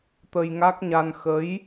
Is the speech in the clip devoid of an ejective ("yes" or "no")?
yes